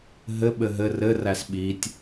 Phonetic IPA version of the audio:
ɦ ɘ ɓ ɘ ɦ ɘ r ɘ r æ s ɓ i tʲ

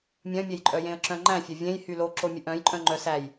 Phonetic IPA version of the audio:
mʲ œ̃ mʲ e j ǃʼ œ j ẽ ə̯ ǁ œ̃ ŋ͡ǃ æ̃ fʲ ɛ vʲ ẽ j h y l o ǁ o mʲ ʉ ʔ œ̃ j ǃʼ œ̃ ŋ͡ǃ œ s æ j

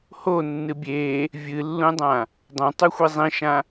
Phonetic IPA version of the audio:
h o nː ɨ bʲ e | vʲ ɨ lː ũ dˤ ã | dˤ õ tˤ ʉ xʷ e zˤ ĩ ʃ ã

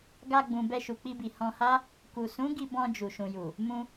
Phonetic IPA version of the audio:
ɡ a˧ ɡ͡b ũ˨ b ɛ˧ ʃ u˨ k͡p i˧ b i˨ h ɔ̃˧ h a˦ | k u˨ s ũ˨˦ ɡ i˧ b ɔ̃˧ d͡ʒ u˨ ʃ ũ˨ j u˨ | m ũ˧

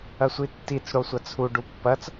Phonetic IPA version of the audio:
ɐ sʷ i tː i t͡s ɽ o sʷ ɐ t͡sʰ u ɖ u pː ɐ t͡s

